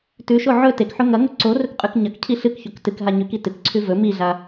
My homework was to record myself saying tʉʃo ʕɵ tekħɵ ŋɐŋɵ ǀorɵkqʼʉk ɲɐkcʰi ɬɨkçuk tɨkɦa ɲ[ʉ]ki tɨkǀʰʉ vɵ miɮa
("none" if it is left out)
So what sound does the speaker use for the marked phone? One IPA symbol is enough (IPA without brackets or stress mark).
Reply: ʉ